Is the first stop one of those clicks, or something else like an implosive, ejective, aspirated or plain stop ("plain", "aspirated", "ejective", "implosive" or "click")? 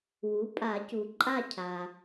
ejective